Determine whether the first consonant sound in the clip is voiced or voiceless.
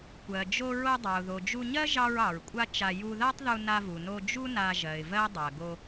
voiceless